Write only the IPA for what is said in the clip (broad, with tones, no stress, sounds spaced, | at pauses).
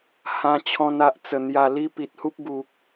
h ã˧ t͡ɕʰ ɔ̃˧ n a˨ ʔ t͡s ə˨˩ n̪ j a˨˩ l i˦ p i˨ t̚ h u˦ p̚ ɡ u˨ k̚